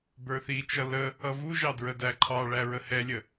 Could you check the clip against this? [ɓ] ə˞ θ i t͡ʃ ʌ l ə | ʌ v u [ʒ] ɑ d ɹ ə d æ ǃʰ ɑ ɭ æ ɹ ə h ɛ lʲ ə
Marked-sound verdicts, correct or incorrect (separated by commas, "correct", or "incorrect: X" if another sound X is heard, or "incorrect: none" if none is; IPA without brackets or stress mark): incorrect: b, correct